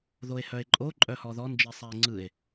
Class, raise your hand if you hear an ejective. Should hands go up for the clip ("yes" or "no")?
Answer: yes